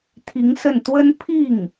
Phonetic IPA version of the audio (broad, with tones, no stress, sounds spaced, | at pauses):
t̪ʰ i˧˥ ŋ s ə˥˩ n t̪ w ə˥ n pʰ i˥˩ ŋ